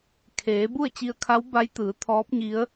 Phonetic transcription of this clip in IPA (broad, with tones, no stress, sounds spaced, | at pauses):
kʰ eː˩˧ b u˥˨ ə̯ t͡ɕ i˧ ə̯ kʰ a˧˥ w b a˧˥ j t̪ ɯː˩˧ t̪ʰ ɔː˧˥ p̚ ɲ i˧˥ ə̯